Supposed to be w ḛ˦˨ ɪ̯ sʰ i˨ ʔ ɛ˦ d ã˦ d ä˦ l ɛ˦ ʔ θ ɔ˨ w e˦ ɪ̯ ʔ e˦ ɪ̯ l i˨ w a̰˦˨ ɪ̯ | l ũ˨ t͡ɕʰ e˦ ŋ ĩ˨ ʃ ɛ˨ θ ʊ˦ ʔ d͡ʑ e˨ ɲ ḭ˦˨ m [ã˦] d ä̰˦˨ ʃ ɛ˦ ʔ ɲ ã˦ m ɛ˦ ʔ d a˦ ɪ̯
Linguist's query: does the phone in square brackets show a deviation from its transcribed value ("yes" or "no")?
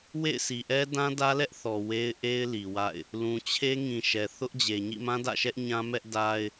no